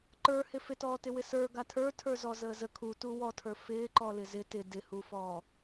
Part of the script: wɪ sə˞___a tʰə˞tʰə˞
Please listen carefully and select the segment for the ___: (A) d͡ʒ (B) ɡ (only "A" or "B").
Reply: B